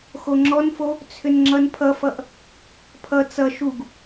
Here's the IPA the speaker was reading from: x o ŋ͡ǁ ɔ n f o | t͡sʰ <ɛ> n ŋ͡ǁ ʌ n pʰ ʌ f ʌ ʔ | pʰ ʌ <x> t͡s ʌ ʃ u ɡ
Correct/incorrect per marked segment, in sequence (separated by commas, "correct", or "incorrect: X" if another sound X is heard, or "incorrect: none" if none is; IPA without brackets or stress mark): incorrect: ʏ, incorrect: none